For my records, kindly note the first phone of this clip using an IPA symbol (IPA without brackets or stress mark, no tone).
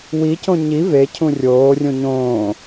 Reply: w